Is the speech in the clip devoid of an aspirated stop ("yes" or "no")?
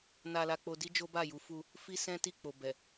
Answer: yes